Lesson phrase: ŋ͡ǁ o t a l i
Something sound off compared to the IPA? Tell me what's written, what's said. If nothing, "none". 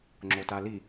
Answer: none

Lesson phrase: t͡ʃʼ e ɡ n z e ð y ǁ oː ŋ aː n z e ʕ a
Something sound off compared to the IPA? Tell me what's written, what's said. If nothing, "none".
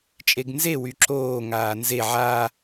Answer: ð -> w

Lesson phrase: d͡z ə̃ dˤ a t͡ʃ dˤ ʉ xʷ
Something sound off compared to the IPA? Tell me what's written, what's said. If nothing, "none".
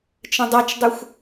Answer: d͡z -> t͡ʃ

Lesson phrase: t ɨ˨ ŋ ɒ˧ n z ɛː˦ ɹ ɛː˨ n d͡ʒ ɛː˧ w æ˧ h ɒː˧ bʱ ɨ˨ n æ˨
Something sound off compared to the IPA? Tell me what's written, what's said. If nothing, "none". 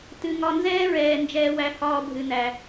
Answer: none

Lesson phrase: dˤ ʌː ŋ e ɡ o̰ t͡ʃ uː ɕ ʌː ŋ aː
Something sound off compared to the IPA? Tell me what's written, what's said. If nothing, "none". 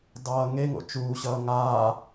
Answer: ɡ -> ŋ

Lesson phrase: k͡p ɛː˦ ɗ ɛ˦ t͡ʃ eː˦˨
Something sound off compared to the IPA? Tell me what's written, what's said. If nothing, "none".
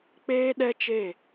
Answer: ɛː˦ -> eː˦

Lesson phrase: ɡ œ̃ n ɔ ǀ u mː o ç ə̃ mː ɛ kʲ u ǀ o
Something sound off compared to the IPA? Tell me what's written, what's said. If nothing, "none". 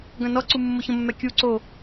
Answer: none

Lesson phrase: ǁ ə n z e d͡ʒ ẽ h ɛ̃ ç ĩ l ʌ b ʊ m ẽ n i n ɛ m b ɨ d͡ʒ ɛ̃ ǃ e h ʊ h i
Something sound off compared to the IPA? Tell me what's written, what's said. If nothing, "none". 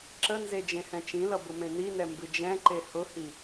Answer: ç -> t͡ʃ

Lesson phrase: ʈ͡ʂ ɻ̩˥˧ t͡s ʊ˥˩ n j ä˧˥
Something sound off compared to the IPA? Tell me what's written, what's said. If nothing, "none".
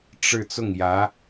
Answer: n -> ŋ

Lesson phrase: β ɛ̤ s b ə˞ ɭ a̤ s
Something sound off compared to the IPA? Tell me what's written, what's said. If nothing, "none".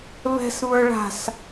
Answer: b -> β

